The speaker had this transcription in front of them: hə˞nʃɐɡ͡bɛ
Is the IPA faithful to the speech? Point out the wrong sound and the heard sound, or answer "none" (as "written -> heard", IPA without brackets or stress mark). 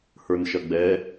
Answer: none